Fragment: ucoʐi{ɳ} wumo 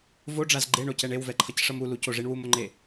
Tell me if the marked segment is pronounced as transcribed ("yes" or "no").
yes